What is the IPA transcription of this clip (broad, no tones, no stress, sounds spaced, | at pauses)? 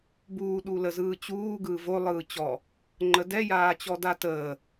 b uː ɗ u l ə z ɯː t͡ɕ uː ɡ ɯː v o lˠ ɯː t͡ɕ ɔ | ŋ͡ǃ ə d ɛ j aː t͡ɕ ɔ d a t əː